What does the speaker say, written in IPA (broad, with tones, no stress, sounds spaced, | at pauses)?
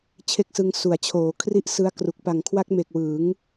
t͡ɕʰ e˥˩ k̚ s ɯ˦˥ ŋ s u˩˦ a̯ t͡ɕʰ oː˩˦ kʰ r i˥˩ ʔ s ɯ˦˥ a̯ k r u˨˩ k̚ p a˨˩ ŋ kʰ w a˦˥ k̚ m e˨˩ k̚ w ɯː˩˦ ŋ